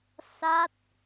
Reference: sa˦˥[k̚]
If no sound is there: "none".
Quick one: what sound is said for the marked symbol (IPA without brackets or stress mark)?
t̚